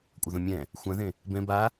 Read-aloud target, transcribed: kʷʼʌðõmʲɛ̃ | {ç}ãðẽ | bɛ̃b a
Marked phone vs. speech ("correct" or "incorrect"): incorrect